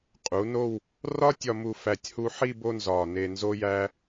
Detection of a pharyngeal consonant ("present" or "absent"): present